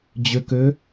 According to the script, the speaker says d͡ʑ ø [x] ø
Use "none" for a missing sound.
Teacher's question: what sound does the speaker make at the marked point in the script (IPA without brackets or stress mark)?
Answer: k